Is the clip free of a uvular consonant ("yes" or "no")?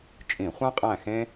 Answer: no